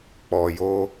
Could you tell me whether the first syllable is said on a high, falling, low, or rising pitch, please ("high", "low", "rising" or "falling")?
low